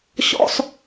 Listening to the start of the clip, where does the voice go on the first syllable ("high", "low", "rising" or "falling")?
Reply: high